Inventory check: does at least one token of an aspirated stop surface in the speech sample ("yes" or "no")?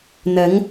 no